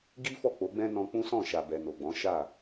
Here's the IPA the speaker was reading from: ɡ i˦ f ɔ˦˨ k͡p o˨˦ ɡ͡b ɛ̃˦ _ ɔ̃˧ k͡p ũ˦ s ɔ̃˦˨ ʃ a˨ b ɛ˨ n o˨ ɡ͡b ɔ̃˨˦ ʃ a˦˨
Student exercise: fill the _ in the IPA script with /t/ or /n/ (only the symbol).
n